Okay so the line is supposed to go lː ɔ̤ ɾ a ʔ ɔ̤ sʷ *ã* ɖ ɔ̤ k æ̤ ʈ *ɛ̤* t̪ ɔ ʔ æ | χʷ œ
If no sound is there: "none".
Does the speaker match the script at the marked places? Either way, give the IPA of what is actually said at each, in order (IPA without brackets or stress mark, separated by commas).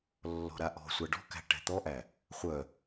a, ɛ̤